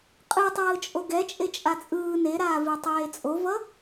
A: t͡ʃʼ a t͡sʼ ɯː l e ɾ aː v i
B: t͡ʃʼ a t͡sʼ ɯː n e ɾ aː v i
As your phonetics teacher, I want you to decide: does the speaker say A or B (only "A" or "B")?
B